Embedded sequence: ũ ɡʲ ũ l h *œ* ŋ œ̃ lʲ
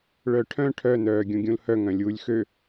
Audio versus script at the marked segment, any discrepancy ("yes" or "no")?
no